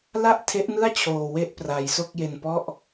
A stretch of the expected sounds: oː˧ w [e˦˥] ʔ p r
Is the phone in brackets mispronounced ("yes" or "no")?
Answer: yes